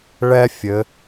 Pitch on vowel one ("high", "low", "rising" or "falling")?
high